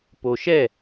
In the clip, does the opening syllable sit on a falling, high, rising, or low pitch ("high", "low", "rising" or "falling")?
low